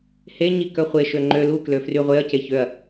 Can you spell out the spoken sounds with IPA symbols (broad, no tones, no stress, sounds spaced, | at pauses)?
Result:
h e ɲ i k œ χʷ e ʃ ø ŋ͡ǃ ø l u k l ø f r y ʁʷ e ɐ̯ c e ç ø ɐ̯